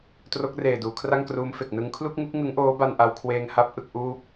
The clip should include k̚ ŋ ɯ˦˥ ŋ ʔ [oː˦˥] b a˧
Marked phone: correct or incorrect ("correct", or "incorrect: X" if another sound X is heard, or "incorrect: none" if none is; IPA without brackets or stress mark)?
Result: correct